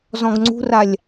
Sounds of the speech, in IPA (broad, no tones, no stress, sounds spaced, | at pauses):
z ɔ̃ ɡ ŋ͡ǀ ṳ r a lʲ